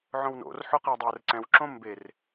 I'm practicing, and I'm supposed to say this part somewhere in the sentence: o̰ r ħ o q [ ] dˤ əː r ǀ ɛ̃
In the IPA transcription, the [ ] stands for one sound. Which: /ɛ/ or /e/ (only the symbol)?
ɛ